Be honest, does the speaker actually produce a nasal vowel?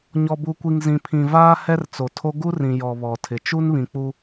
yes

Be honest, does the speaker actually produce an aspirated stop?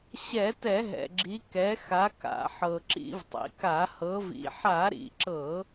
no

